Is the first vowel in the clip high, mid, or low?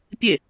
mid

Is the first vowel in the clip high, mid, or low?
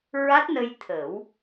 low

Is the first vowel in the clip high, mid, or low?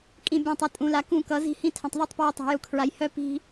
high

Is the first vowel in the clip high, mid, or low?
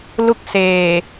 high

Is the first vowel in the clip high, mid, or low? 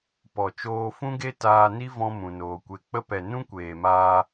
mid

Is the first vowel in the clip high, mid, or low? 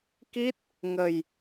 high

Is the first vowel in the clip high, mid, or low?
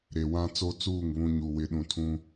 mid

